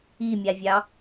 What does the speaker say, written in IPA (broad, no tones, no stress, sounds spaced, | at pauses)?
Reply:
i mʲ a vʲ ɑ